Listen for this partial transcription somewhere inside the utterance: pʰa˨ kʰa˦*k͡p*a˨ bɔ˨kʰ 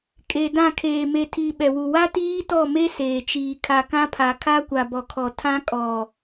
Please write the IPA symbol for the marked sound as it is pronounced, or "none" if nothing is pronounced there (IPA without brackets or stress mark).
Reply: kʷ